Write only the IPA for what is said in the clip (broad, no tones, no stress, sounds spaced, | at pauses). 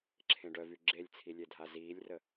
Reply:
ǁʰ ẽ ɖ œ v y ɡ͡ǁ e lʲ t͡sʰ i lʲ e dʱ a z iː lʲ r ə